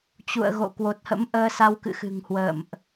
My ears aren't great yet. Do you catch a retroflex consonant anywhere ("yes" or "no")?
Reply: no